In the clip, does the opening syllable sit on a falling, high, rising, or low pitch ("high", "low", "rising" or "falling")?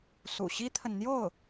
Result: low